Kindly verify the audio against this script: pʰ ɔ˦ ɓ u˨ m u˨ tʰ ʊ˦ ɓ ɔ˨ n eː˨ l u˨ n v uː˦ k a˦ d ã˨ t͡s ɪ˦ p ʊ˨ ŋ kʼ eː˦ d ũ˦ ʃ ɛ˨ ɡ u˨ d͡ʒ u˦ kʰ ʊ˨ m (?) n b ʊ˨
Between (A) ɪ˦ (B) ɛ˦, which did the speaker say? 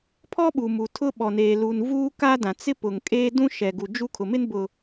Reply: A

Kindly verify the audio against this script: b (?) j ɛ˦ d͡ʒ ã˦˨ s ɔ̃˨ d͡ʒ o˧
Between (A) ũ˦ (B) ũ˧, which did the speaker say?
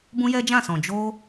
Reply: A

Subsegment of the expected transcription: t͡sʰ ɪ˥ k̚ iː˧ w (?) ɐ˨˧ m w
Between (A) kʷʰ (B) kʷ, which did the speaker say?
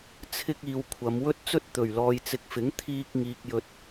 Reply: A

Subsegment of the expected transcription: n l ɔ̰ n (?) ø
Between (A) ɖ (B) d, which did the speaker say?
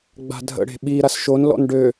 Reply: A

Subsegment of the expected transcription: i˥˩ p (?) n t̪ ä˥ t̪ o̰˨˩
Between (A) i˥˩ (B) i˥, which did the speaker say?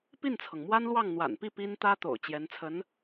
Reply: B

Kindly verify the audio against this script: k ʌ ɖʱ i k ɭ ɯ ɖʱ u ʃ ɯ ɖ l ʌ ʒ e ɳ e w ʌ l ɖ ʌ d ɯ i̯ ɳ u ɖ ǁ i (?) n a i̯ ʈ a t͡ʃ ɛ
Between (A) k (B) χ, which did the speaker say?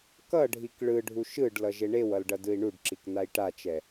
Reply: A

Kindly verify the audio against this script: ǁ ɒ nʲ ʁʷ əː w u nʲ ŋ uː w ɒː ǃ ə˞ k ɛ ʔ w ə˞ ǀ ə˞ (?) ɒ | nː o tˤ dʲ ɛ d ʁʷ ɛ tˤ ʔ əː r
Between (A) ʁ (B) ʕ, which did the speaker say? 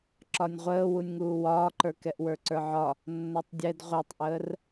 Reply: B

